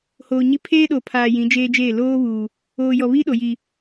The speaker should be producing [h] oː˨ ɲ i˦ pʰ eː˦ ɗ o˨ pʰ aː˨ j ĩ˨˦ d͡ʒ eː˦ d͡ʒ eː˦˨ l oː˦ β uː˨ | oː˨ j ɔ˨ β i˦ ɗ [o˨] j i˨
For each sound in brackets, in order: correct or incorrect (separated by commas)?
correct, correct